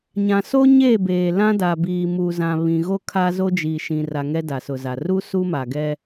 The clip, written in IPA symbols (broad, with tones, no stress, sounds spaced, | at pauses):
ɲ ã˨ s o˦ ɲ e˦˨ b eː˨ l ã˦ d a˨ b iː˨ m uː˨ z ã˨ β ĩ˨ ɣ o˦ kʰ a˦ z o˦ d͡ʒ iː˨ ʃ ĩ˨ r a˨ ŋ ɛ˦ d a˨ s ʊ˨ z a˨ r u˦ s u˦ m a˨ ɡ ɛ˦